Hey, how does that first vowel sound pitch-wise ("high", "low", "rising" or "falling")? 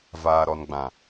low